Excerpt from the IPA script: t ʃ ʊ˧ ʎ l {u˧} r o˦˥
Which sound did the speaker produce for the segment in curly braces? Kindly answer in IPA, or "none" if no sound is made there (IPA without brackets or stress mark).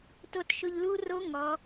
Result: u˦˥